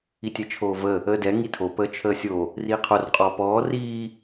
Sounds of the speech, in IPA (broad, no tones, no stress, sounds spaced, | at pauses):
i tʲ ɛ t͡ʃʰ oː v ə | əː d ɛ ŋ i tʰ o p əː t͡ʃʰ əː sʲ o | r iː qʰ o r qʼ ɔː p ɔː r iː